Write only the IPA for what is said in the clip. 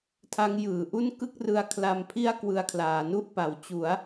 tʰa˦˥ŋjɯː˩˦ʔu˥˩n kɯ˥˩k̚rɯ˧a̯ kʰla˧mpʰi˥˩a̯ kwɯ˧a̯kʰlaː˩˦nu˥˩ʔ pa˩˦w t͡ɕu˩˦a̯

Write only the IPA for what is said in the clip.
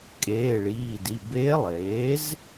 kʼeː˩˧˩ɭiː˩˧˩di˩˧˩ beː˧˥lˠeː˩˥z

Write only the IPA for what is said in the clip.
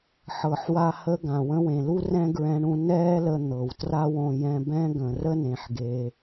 ħɤ˩ħwa˧ hə˥ɡã˩wə̃˥wẽ˩ lu˥rɛ̃˥ɡɹɛ̃˧ɳũ˧ nɛː˥lə˧ n̪ɤ˩wtra˥wõ˧ jɛ̃˧bɛ̃˥ɡə̃˩ rə˥nẽ˩ħɡe˩

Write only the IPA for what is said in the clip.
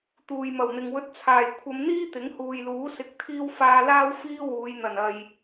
t̪uː˨jmɐ˨˩wn̪ɪ˨ŋwɵ˧t̚ t͡sʰaː˨˩jkʷʰɐ˨˧mn̪iː˥ t̪ɪ˨˥ŋhuː˨jluː˨˥ sɪ˧k̚t̪ʰiː˥w faː˧laː˥w fiː˥ wuː˨˧jn̪ɐ˨˩nɐ˨j

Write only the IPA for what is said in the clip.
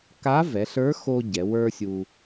ka˧˥vɛ˩˧ɬə˞˧˥xo˧ ɟɛ˩˧wə˞˥sʲu˧

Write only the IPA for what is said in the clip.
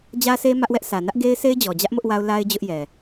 d͡ʑä˦se˦ mä˦ʔwɛ˦ʔ sä˨nä˦ʔ ɡe˦ɪ̯se˦ɪ̯d͡ʑɔ˨d͡ʑä˦ʔ mʊ˦ʔwa˦ʊ̯ la˦ɪ̯ d͡ʑʊ˦ʔjɛ˨

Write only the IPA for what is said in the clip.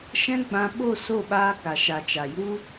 ʃɛ̃˦ɡ͡bã˧ ɓo˦˨ so˦˨ɓaː˧ ka˨ʃa˨t͡ʃa˨ju˦

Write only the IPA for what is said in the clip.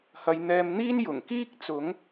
hɐ˨˧jn̪ɛː˧mn̪iː˥n jʊ˨˩ŋkiː˥k̚ t͡sʊ˨˥ŋ

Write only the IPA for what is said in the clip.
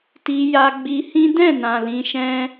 ti˧ ja˧ ɡ͡bi˧hĩ˦ dɛ̃˦˨nã˨ lĩ˧ʃɛ̃˦

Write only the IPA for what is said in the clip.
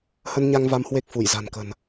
hə˧nɲa˧ŋ va˧mhwe˦˥k̚ fu˧˩j za̤˨˩nkə̤˨˩n

